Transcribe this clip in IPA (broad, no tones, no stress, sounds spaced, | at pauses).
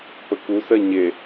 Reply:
p ə k u s ɜ ɲ e